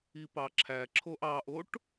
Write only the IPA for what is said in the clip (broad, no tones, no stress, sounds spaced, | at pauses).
i p ɑ ǁʰ æ ǁʰ o ʔ ɑ ʔ o ʈ